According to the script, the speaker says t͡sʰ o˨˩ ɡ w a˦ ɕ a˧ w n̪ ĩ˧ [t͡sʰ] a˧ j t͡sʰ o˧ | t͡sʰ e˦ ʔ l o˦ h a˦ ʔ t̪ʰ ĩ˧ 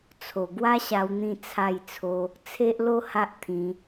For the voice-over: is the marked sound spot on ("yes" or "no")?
yes